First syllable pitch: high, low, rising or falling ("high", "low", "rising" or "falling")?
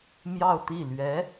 falling